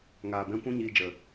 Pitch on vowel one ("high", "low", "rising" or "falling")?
low